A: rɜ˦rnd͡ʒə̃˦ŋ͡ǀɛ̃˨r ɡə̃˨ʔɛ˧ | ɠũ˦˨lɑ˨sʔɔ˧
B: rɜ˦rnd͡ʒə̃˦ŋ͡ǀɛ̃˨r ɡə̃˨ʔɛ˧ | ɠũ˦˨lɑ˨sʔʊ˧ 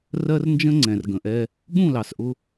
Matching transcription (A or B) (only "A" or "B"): B